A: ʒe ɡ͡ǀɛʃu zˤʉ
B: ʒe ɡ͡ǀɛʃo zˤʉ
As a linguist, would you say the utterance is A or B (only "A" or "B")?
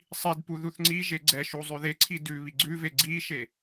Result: A